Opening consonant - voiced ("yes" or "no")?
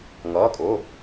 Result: yes